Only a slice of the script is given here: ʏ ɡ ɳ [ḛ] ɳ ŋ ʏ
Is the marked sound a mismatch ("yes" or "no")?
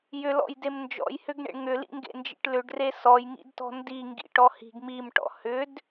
no